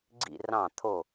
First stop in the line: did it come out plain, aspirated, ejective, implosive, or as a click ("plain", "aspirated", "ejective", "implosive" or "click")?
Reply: click